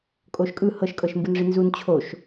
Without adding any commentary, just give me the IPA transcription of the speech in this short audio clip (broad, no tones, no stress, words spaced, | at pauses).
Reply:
kʼoʃkʼɯ hɤʃkʼɤʃmbɯnʐi nzun t͡ɕʰoʃ